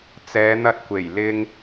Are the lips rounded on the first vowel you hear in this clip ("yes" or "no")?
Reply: no